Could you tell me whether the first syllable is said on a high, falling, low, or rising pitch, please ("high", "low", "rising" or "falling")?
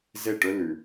falling